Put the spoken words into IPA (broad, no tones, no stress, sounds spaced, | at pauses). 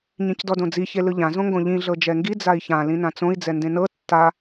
ɲ ĩ c d ɔ d õ d͡z i ç e l ɯ ʎ ã z õ ŋ ɡ õ ʎ ĩ ɮ ɤ d͡ʒ ɛ ŋ ɡ i d͡z a i̯ ç ã l ĩ n ã t͡s õ i̯ d͡z ɛ n d ẽ n ɤ tː a